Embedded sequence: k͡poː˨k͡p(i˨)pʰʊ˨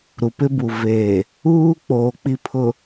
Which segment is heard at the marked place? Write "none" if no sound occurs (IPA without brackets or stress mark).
i˨